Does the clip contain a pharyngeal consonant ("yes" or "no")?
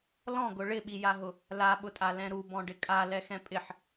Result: yes